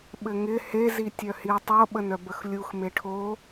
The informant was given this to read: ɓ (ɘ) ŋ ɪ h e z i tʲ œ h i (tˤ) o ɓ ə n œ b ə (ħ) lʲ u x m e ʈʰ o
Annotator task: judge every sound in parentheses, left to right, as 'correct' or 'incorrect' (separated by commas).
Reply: correct, correct, incorrect